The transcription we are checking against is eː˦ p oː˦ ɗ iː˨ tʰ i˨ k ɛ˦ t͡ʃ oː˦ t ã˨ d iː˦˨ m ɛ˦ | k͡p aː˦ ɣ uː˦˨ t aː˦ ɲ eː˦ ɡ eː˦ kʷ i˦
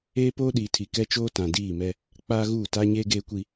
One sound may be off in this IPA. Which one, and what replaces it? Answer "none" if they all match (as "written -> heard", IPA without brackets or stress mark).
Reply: none